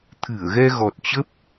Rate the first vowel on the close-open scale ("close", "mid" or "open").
close